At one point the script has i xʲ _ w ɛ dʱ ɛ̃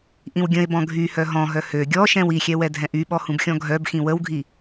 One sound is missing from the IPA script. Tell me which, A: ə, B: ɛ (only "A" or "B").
B